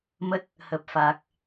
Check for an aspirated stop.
absent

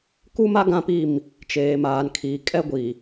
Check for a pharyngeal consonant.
absent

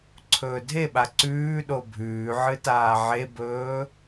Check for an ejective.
absent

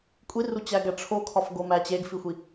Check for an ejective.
present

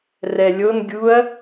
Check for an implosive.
absent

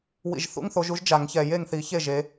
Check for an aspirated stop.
absent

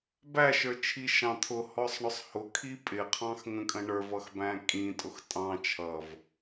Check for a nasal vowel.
present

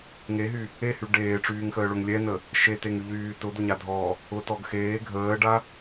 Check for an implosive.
absent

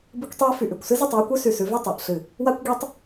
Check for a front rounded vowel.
present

